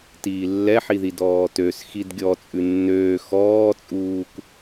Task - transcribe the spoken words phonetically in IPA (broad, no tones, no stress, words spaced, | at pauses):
tiːlːɛħiði dɔːtøs xidɡʲɔ t͡sʼʉnːøː xɔːt͡sʼuːk